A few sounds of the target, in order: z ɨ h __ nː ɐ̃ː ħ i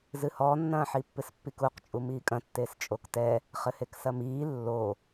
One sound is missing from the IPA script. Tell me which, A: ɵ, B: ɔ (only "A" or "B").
B